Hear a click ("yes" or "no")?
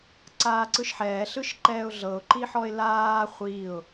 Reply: yes